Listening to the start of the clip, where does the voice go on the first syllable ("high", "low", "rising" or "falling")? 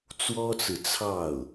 high